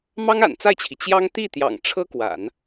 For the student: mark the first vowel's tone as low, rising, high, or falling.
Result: high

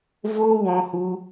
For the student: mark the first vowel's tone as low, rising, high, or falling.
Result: high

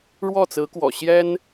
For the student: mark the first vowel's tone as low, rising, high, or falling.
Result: falling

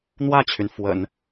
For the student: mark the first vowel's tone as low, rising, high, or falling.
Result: falling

